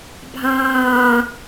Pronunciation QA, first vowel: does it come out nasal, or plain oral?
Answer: nasal